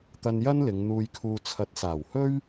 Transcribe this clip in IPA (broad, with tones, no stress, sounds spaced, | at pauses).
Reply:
t̪ ɐ˧ n j ɐ˥ n l ɪ˨˧ ŋ n̪ uː˧ j kʰ uː˧ t͡sʰ ɐ˨˥ t̚ s aː˨˩ w h ɵ˥ ɥ